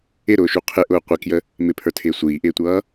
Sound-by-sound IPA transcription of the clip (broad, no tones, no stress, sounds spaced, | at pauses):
ɪ ɾ ʊː ʃ u qʰ ɪ ʔ ʊː qʷ ɪ k j ə | m ɪ pʰ ə˞ tʰ ɪː sʷ iː ʔ ɪː tʷ ʌː